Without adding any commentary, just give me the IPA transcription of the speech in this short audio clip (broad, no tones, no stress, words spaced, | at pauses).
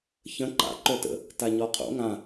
çə̃ ǃa̰ ǃœtə̰ | taɲɔqʰo̰ ŋã